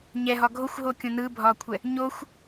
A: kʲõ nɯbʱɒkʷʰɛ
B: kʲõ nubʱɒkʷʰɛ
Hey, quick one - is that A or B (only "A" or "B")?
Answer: A